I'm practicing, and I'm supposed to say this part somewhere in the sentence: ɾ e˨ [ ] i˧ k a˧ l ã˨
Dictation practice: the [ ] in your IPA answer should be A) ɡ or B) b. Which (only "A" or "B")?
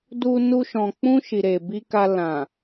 B